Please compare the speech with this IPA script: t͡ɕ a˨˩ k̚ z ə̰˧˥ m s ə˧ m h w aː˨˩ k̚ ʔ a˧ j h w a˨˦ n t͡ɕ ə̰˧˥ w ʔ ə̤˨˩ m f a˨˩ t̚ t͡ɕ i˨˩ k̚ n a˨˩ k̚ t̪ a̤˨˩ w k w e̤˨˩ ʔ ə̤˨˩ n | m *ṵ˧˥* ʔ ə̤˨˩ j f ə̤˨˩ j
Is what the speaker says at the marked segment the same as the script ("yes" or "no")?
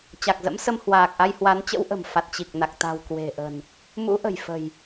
yes